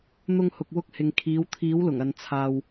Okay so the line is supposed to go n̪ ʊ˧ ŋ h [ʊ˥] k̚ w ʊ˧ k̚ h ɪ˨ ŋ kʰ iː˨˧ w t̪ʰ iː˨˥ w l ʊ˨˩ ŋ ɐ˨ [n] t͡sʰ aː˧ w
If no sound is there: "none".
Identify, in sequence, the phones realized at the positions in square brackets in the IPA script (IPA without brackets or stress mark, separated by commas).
ʊ˨, n